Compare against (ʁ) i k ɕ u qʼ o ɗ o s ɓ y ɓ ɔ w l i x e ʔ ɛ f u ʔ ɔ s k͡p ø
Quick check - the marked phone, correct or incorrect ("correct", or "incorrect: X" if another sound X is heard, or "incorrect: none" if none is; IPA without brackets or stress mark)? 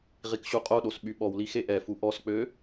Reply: correct